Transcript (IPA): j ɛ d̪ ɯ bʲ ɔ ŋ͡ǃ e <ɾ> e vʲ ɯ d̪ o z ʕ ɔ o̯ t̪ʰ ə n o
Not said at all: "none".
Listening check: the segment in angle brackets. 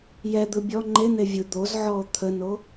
n̪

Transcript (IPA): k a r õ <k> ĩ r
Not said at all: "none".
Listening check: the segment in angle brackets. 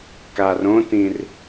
t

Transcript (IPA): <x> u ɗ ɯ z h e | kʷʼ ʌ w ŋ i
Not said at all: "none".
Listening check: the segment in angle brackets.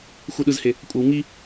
x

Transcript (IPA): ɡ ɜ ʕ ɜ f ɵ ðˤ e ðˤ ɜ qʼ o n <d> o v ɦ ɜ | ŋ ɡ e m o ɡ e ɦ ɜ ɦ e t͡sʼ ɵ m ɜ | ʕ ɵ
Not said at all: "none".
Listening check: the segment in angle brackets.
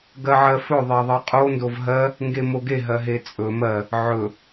d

